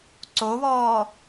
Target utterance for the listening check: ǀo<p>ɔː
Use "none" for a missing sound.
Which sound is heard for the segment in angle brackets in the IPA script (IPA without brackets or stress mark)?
β